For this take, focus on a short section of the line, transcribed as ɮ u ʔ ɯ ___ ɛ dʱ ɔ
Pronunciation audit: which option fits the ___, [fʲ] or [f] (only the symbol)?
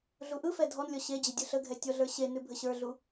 f